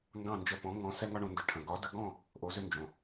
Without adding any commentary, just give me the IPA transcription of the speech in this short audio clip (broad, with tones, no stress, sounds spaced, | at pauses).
ŋ ɡ ɑ̃˥˩ n d͡ʒ ə˧ p ɔ̃˩˥ ŋ ɔ̃˩˥ s ɛ˥ ŋ ɒ˥ ɳ õ˩˥ n d ʏ˧ ʈʰ ə̃˩ ɡ ɒ˩˥ d ə˧ ɡ ɔ̃˥˩ | ʔ o˩˥ z ʏ˧ n d͡ʒ õ˩